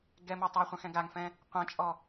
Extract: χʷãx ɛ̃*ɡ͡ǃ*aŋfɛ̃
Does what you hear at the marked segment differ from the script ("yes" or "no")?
yes